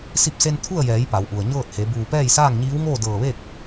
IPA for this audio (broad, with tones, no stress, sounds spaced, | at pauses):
s i˧ p̚ s e˧ n t̪ʰ u˥˨ ə̯ j ɛː˩˧ j p a˩˧ w ʔ u˩ ə̯ ɲ ɤː˥˨ t̚ h e˩˧ b uː˧˩ p ɛː˥˨ j s aː˥˨ ŋ ɲ iː˧˥ w ŋ oː˥˨ d ɤː˧˩ ʋ e˥˨ k̚